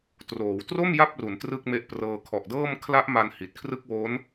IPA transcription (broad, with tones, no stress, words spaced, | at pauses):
troː˩˦w tro˥˩m ja˥˩p̚ru˩˦n trɯ˥˩k̚me˦˥ʔprɤː˧ kʰɔ˨˩ʔdɤː˥˩m kʰla˦˥ʔma˧n hi˨˩t̚kʰrɯ˥˩k̚wo˦˥n